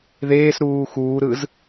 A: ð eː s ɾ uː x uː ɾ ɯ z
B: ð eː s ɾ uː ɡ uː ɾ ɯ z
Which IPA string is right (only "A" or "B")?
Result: A